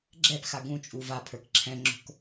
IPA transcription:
ɡ͡ǁ ɛ p x a ɡ ũ t͡ʃʼ u v a pʰ ə˞ k ǁʰ ɛ̃ ŋ͡ǁ o̤ k

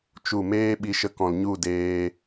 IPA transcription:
t͡ʃ u˦˨ m eː˦ ɓ i˧ ʃ ə˧ k ɔ̃˨ l ɲ u˦˨ d eː˧

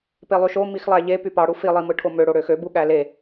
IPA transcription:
p e lˠ y ʃ o m i x lˠ æ ʎ e p y p ɑ ɽ u f i lˠ i m ɯ ʈʰ o m ø ɽ o ɽ ø x ø b u ɠ æ l e

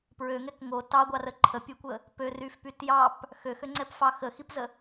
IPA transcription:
p ɹ ø ŋ ɛ k ŋ o t ɑ ɡʷ ɑ r ə ǃʰ ə pʲ ɨ kʷ ə | p ø r y f p y t j ɑ p | x ø x ø ŋ͡ǀ ɛ p f ɑ x ə x i p z ə

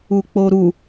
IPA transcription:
u k͡p o ɾ u

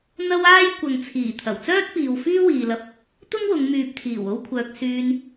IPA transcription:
n̪ ɐ˥ w aː˥ j kʷ ɐ˨ ŋ t͡sʰ iː˨˩ t̪ʰ ɐ˨˩ w t͡s œː˥ t̚ p iː˨ w f yː˥ w iː˨ l ɐ˧ p̚ | t̪ ʊ˥ ŋ w ʊ˨˧ ŋ m yː˨ p̚ t̪ʰ iː˨˩ w o˥ w kʷʰ œː˧ k̚ s yː˧ n

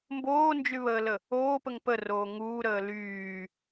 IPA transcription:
m b oː n d͡ʒ y β əː l ə | oː p ə ŋ p ə r oː ŋ uː ɾ əː l yː

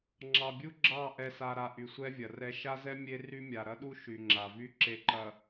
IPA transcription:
ŋ͡ǁ ɑ˨ bʲ u˦ ɡ͡ǁ ɑ˦˨ ʔ ɛ˨ s a˨ ɾ a˨ ʔ y˨ sʷ ɛ˦ vʲ ɐ˨ r ɛ˦ ʃ a˦ z ɛ˦ mʲ e˦ r y˦ mʲ a˨ ɾ ɐ˦ ɗ u˦ ʃ y˨ ŋ͡ǁ a˨ v y˦ ǁ e˨ ǃ ɐ˨

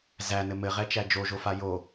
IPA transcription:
z æ n ɘ m ɘ ʁ ɛ t͡ʃ æ d͡ʒ o ʒ o f a j o

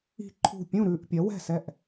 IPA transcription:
i̤˥˨ ǃʰ ṳ˥˨ pʲ ũ˥˨ ɾ ʉ˥˨ ʔ pʲ ɐ˨˥ w ɛ̤˥˨ s ɛ˥˨ ʔ

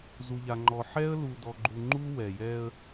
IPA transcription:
z u˨ ʎ a˨ ŋ͡ǃ ɔ˨ ħ ɛ˦ ə̯ l u˨ d ɔ˨ ɡ͡ǃ u˨ ŋ͡ǃ u˦ w ɛ˨ j ɛ˦ ə̯

